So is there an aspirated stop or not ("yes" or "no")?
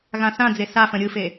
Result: no